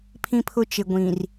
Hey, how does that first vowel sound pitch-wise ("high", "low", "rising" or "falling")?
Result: high